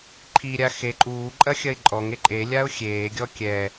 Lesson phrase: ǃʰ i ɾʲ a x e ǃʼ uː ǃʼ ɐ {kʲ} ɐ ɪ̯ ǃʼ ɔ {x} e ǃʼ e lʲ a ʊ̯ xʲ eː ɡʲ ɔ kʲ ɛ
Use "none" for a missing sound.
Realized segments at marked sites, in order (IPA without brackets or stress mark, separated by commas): xʲ, ŋ